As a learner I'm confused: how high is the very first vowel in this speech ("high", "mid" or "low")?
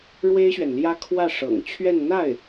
mid